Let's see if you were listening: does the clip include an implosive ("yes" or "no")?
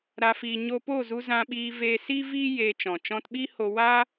yes